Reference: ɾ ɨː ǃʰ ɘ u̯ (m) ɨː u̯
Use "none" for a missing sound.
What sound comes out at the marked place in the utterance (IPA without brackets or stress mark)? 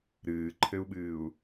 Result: ɓ